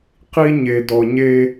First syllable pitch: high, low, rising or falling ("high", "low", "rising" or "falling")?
high